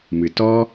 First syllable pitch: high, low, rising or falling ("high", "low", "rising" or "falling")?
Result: low